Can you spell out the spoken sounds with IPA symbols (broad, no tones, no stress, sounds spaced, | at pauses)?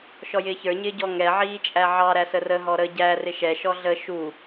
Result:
ʃ ɔ j ɪː ç ə˞ ɲ ɪː ɟ ɔ ŋ ɛ ʕ iː t͡ʃʼ æ ʕ ɑ ɾ æ s ə r ə ɦ ɔ ɾ ə ɟ æ r ɪ ʃ ɛ ʃ ɔ ɮ ə ʃ u